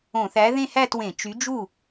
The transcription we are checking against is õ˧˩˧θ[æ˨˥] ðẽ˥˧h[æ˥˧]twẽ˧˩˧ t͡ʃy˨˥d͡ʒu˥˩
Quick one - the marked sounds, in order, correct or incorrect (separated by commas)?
correct, correct